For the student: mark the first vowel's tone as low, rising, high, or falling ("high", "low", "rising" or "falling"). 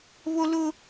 high